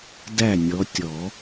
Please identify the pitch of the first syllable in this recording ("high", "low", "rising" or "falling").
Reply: falling